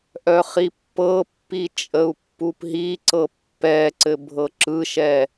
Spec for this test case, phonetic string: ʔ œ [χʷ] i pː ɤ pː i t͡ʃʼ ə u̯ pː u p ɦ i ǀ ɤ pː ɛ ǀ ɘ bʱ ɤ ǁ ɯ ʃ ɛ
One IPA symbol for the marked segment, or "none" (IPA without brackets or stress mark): χ